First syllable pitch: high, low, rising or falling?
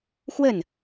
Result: falling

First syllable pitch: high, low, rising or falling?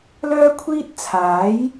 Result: high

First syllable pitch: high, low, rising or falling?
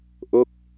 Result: falling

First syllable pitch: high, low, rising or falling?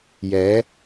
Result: rising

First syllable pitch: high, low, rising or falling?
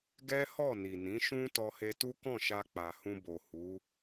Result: high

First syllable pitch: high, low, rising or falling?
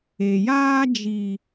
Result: low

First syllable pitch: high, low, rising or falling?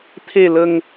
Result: low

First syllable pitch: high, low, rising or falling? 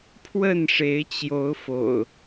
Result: falling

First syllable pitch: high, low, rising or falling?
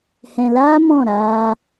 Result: low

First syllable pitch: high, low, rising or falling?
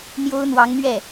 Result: high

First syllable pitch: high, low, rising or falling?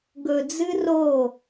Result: low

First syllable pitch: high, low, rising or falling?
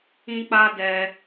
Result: high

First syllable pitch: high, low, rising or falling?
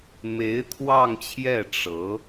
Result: rising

